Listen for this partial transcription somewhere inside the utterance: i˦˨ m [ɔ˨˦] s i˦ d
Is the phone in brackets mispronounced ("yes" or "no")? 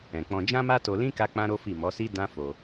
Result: no